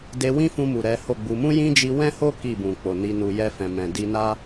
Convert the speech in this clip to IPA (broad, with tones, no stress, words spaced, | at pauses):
de˧wĩ˦fũ˧ mu˨ ɾɛ˨˦ho˦˨ɡ͡bu˧ mũ˦jĩ˦d͡ʒi˧ wɛ̃˦ho˦ ki˦˨bũ˨k͡po˨ ni˧nu˧ jɛ˧fɛ̃˨ mɛ̃˨di˧na˦